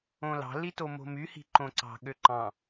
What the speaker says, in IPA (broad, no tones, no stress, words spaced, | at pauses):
õlɑ̤ litomo̤my hi̤ǃõǀɑ̤ ɠøǃɑ̃